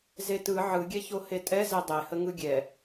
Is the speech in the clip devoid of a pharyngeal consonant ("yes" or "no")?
no